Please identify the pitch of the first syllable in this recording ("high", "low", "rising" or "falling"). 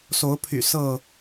rising